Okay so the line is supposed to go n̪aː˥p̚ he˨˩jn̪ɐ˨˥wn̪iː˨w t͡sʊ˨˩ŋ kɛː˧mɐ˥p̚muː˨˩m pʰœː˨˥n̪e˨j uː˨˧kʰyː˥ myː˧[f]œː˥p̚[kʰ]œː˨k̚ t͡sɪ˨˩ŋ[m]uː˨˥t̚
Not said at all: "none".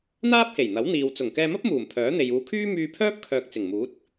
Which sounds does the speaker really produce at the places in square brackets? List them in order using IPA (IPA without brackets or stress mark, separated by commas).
pʰ, kʰ, m